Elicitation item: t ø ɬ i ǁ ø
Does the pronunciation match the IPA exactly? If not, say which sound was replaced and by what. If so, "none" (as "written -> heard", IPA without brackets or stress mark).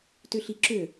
none